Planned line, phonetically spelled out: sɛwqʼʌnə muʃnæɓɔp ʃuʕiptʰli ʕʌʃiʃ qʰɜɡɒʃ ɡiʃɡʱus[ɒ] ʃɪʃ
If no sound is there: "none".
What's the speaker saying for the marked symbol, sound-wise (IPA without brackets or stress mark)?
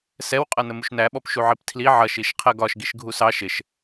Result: ɑ